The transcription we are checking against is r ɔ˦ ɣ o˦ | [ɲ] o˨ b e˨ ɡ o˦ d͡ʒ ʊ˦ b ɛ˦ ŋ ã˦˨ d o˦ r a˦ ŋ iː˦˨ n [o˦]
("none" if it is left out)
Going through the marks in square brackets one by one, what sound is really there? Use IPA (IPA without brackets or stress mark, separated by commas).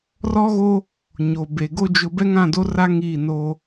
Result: ɲ, o˦